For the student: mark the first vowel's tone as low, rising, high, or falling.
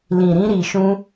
low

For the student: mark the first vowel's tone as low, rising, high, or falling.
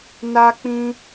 high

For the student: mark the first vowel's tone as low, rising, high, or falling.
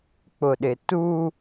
low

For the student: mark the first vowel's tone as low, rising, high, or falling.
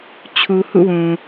low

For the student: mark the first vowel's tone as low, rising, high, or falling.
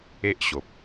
high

